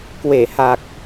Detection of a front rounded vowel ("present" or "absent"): absent